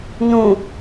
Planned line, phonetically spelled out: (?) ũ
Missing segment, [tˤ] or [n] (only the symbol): n